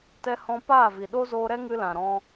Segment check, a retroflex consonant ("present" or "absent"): absent